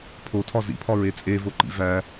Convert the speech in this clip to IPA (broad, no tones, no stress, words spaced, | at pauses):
pʰotʰɒ zḭpʰɒɹe t͡sʼevoǃḭ væ